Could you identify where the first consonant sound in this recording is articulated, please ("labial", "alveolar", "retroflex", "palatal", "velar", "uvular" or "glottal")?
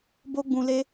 labial